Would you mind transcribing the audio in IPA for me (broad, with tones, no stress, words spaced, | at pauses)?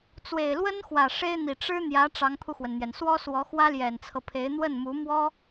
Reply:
t͡swe˨˩ɪ̯lwə˥nxwä˨˩ ʂe˥ɪ̯n̪i˨˩ ʈ͡ʂɻ̩˥n̪jä˧˥ ʈ͡ʂɑ˧˥ŋpʰu˧xwə˩nn̪jɛ˩n swɔ˥swɔ˧˥ xwä˥ljɛ˨˩nt͡sʰɤ˦pʰe˧˥ɪ̯ n̪wə˥˩nmu˧˥mwɔ˥